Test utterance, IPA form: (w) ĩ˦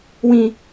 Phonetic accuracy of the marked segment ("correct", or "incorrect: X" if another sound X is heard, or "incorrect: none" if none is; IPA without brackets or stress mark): correct